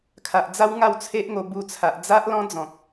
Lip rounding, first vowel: unrounded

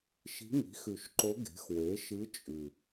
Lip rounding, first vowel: unrounded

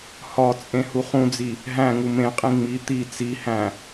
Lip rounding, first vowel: rounded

